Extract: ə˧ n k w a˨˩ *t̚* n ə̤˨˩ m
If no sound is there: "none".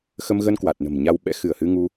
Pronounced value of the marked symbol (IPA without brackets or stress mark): t̚